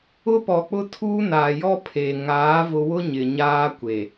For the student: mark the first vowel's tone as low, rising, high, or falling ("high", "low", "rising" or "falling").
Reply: high